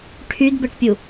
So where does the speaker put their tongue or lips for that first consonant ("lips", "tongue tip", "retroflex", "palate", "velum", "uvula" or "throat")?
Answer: retroflex